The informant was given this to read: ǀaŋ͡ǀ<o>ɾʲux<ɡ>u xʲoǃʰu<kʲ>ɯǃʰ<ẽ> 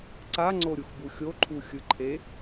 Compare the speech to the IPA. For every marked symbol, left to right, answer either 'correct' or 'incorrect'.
correct, incorrect, incorrect, incorrect

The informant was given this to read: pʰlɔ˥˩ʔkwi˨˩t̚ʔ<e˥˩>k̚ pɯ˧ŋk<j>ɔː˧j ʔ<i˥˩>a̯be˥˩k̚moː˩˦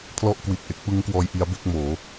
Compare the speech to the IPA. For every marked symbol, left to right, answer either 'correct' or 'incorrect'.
incorrect, incorrect, incorrect

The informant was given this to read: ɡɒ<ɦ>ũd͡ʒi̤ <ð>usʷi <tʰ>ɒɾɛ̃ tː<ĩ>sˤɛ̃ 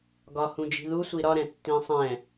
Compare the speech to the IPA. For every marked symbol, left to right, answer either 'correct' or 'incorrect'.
incorrect, correct, incorrect, correct

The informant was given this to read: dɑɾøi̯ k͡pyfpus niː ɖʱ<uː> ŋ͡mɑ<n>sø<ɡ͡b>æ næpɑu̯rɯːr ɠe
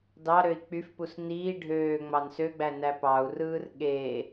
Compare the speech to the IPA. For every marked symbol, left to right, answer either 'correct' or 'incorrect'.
incorrect, correct, correct

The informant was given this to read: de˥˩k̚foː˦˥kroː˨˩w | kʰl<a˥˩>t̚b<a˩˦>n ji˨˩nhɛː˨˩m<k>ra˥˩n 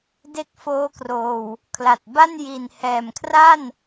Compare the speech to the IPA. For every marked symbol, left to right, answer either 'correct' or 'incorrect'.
incorrect, incorrect, incorrect

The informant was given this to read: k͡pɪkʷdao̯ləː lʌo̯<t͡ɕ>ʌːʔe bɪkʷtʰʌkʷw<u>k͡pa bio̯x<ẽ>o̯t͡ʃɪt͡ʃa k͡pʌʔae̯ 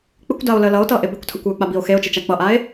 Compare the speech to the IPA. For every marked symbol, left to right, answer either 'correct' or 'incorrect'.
incorrect, incorrect, incorrect

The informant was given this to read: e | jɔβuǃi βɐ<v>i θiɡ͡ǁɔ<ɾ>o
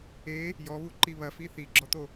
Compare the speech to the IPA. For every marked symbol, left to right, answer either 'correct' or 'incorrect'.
incorrect, incorrect

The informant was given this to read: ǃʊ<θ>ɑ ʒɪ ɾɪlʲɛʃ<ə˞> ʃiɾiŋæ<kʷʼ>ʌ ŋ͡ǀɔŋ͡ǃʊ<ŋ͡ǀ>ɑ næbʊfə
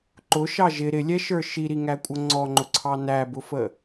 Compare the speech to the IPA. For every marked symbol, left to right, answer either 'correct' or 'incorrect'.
incorrect, correct, correct, incorrect

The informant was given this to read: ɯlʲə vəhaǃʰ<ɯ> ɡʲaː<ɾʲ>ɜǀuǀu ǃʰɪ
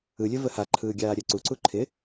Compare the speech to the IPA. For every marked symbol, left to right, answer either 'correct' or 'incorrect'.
incorrect, correct

